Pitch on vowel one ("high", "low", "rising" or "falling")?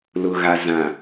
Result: low